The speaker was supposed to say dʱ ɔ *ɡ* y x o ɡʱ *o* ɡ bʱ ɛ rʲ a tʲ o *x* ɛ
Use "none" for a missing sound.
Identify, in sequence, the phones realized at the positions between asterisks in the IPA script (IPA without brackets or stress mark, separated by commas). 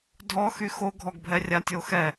x, ɔ, x